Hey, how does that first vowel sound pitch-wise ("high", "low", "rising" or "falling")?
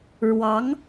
rising